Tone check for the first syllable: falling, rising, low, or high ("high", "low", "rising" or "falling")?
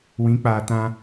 rising